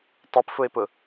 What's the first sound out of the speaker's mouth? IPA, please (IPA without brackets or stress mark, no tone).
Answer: tˤ